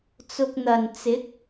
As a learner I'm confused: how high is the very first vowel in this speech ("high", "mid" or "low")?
high